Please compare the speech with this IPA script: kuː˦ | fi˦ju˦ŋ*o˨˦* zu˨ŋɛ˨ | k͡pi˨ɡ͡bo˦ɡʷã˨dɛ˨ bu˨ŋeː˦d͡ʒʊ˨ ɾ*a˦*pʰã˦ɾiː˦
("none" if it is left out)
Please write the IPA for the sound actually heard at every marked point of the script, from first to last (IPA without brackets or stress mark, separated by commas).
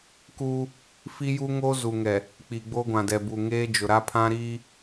o˦, a˦